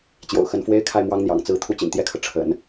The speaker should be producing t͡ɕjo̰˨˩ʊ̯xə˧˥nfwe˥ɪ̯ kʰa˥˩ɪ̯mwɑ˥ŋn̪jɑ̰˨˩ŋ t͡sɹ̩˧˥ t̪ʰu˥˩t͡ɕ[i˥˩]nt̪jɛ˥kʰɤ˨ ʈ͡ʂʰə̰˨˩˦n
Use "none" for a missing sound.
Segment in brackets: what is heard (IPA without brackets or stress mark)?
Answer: ḭ˨˩